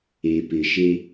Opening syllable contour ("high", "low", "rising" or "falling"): low